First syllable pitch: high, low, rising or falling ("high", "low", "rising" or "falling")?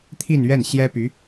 falling